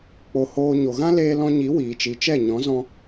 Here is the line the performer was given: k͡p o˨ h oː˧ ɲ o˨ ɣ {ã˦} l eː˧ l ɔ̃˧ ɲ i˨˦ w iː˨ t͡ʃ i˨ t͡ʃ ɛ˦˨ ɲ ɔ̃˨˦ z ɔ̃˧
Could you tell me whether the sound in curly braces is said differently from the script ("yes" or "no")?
no